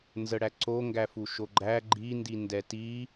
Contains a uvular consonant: no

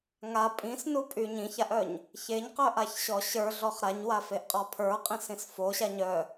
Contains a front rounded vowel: yes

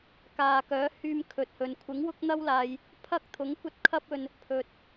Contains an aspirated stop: yes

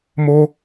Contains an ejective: no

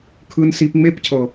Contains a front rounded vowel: no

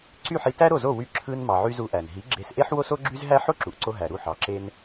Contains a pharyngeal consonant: yes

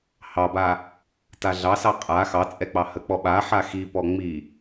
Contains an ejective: yes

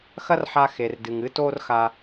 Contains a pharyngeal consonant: yes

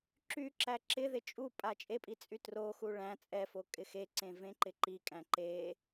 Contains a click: yes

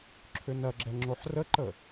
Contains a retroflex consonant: no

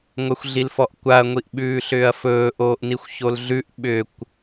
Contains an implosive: yes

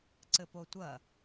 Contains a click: yes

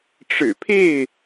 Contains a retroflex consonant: yes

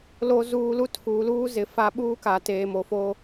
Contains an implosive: yes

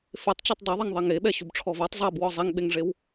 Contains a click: no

